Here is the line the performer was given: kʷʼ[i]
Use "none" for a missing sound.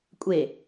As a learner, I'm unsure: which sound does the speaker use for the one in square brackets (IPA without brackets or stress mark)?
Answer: e